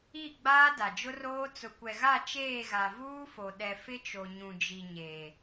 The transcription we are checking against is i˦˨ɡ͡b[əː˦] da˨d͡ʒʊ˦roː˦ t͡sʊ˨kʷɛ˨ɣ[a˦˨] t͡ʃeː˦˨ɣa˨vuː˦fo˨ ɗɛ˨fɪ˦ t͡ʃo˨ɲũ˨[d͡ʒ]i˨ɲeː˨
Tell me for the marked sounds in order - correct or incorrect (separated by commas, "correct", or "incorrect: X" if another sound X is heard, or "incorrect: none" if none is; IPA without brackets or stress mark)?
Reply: incorrect: aː˦, correct, correct